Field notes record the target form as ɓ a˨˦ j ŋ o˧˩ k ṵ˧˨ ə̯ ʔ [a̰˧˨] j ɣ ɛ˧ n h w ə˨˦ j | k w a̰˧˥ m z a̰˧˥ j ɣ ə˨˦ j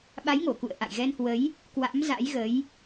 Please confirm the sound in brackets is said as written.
yes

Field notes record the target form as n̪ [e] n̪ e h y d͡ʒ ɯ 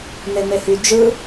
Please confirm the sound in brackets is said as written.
yes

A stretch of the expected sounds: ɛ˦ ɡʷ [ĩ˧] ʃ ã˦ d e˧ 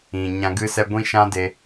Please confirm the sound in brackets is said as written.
no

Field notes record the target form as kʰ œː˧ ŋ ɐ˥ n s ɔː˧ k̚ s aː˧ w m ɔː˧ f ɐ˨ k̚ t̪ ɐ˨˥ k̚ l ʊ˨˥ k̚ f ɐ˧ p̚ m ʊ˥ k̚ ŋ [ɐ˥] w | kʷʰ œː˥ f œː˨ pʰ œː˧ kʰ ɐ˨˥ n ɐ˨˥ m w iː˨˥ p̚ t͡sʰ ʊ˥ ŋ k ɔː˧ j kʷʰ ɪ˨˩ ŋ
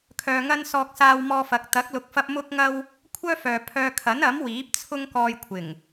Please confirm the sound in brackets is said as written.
yes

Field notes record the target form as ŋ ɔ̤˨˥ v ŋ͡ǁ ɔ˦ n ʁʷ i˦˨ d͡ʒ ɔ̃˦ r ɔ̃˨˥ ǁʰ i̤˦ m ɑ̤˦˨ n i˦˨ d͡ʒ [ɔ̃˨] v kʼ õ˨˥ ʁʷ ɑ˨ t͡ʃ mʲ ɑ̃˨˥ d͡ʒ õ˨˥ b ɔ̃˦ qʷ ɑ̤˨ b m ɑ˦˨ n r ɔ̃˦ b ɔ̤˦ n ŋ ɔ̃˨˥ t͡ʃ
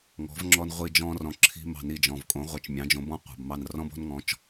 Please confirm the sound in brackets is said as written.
yes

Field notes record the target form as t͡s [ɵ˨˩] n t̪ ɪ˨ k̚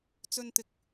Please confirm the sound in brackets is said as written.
no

